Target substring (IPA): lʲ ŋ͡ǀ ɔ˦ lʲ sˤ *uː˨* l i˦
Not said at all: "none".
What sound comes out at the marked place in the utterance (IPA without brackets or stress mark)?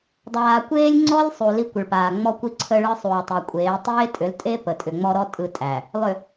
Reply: u˨